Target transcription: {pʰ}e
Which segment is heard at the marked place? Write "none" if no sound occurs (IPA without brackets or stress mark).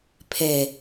pʰ